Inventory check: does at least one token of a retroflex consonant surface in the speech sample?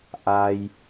no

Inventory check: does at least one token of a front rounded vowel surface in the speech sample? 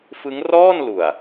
no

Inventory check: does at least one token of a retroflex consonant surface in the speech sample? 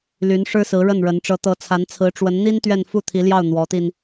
yes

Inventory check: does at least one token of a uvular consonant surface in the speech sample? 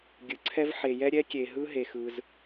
no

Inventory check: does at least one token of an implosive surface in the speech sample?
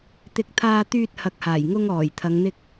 no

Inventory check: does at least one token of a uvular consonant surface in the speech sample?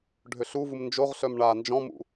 yes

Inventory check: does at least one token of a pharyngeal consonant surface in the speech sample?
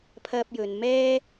no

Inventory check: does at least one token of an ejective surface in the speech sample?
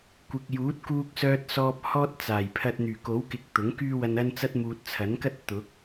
no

